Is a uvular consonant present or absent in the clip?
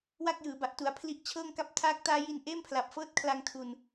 absent